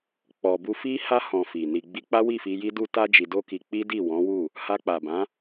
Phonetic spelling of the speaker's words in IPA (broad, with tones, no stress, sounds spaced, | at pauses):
k͡p ɔ˨ b u˧ f i˦ h a˦ h ɔ̃˧ f i˨ n i˨ ɡ͡b i˧ k͡p a˦ w i˦˨ f i˧ j i˦ d u˦ t a˦ d͡ʒ i˧ d o˦ k i˧ k͡p i˦ d i˦˨ w ɔ̃˨˦ w u˦˨ | h a˧ k͡p a˨ b ã˨˦